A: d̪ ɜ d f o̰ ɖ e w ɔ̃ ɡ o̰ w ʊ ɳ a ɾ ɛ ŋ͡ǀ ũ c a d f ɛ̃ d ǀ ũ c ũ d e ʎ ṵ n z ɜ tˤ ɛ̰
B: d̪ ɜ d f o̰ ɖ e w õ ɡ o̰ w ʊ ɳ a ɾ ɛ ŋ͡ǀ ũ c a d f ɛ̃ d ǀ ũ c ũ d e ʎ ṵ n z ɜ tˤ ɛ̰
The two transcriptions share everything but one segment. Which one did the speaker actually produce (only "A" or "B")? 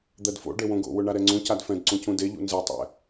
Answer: B